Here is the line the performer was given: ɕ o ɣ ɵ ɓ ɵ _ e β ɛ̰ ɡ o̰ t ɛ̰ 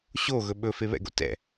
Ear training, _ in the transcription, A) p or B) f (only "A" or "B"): B